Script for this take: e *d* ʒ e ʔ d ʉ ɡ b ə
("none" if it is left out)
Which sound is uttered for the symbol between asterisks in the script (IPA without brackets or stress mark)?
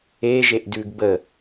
none